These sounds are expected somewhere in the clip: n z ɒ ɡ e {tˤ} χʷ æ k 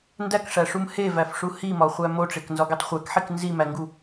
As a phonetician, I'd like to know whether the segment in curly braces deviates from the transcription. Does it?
no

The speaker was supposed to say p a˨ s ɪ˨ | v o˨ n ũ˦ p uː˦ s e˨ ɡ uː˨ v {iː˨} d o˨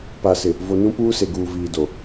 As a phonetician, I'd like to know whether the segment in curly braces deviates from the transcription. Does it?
no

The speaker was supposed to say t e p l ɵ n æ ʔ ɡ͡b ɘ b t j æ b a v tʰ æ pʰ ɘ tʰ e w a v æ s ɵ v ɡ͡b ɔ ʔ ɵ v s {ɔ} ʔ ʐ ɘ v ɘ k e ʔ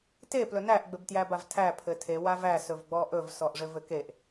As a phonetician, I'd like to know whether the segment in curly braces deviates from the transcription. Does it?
no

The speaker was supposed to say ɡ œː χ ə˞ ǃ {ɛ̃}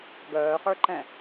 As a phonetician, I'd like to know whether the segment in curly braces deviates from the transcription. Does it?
no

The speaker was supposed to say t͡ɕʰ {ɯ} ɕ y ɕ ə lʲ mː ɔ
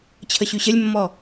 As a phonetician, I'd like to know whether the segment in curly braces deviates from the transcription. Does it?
yes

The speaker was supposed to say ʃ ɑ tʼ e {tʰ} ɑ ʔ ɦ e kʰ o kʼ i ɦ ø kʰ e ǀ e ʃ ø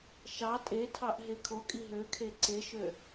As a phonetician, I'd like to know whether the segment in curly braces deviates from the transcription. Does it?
no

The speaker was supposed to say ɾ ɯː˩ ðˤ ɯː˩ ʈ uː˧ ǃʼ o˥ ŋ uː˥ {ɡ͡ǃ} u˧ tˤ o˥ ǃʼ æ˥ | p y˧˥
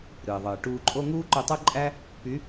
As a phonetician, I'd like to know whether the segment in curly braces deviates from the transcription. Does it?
yes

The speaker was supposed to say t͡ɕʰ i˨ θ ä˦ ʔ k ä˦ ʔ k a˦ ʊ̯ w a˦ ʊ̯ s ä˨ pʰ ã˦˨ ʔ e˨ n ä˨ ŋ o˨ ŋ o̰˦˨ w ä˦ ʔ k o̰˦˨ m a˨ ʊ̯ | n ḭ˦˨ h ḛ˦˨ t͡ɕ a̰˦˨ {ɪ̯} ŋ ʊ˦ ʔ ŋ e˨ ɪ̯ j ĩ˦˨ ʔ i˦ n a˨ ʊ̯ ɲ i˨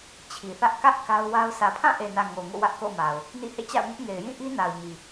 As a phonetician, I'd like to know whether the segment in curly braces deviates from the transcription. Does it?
yes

